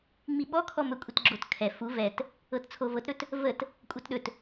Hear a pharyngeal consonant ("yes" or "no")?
no